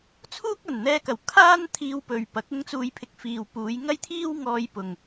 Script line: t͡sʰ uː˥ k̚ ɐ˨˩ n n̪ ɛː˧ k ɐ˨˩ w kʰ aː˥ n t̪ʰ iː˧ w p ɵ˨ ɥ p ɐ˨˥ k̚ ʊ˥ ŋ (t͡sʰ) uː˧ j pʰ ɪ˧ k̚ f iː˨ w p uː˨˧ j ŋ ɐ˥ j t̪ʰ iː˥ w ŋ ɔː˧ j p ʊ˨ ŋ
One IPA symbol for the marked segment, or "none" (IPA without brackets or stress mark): t͡s